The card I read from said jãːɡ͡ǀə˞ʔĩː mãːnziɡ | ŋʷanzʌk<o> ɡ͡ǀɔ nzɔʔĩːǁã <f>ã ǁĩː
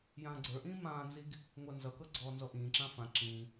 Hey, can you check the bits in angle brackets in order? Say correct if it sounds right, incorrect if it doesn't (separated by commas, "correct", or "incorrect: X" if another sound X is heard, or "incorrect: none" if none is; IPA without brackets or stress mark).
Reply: incorrect: ɤ, correct